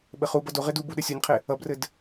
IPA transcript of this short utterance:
ɓɘχubʌ doʁed ubu ɗɘsʲonʲqʰe | ʌbrɘd

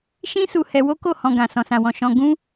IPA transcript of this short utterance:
ʃĩ˦ su˧hɛ˧wo˦ko˦˨ hɔ̃˨ ɡã˨ sɔ̃˨sã˨wɔ̃˨ ʃɔ̃˧ ɡũ˦

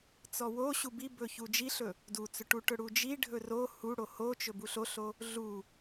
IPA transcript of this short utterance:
t͡sɔwoɕu bibɵ çud͡ʒiɬɵ | dut͡sɵʈuʈɵ ɽud͡ʒi ɖʱɵro huɽo hot͡ʃɵ buɬoɬo | ɮu

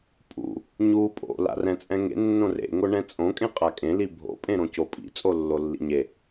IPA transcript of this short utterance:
pʼṵ | ɲu pʼo̰ la̰rɛ̃t͡sʼɛ̃ŋḛ nːõrḛ ŋoɳɛ̃t͡sʼõ kʼẽqʼakʼẽ libʱo̰ pʼẽɾõcopʼḭ t͡sʼolːolːḭɲe

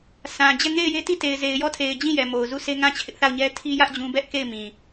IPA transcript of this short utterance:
sã˨d͡ʑɛ˦˨ ŋe˦˨ɪ̯je˦ti˦˨ te˨ɪ̯ze˨ɪ̯jɔ˦˨ tʰe˨ɪ̯d͡ʑĩ˦˨ jɛ˨mo˨ʊ̯ zu˦˨sʰe˦ ŋã˦˨t͡ɕʰɪ˦ʔθa˦˨ʊ̯ ɲɛ˦tʰi˦jä˦ʔ d͡ʑũ˦ bɛ˦ʔke˦˨ɪ̯ mĩ˨

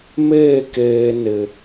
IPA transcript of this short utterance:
me˦˨keː˨ nɪ˨

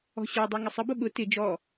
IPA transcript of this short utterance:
ɔ̤ɕɔdˤɤ ŋɪsˤəbʊ ɠʊ tɪ d͡ʒɔ

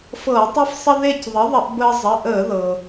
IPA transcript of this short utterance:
fɤː˧˩˧tˤi˦fsˤə˦ ðe˦˨cðˤə˩˥ðˤə˧˩˧ʔ bəː˦ zˤə˩˧˩ʔəː˧˩˧ðɤ˩

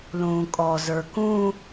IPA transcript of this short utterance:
lũːkʼɔ zə˞kũ

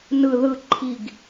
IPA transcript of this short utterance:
nɯ ðɯ ǃʰiɡ

